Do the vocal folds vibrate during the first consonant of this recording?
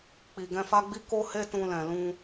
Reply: no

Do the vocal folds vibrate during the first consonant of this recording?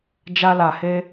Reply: yes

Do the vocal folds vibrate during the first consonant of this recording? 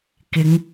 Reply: no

